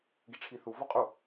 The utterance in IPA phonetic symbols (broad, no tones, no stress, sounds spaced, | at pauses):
ɡ i ʈ͡ʂʰ i θ u v ɔ qʼ u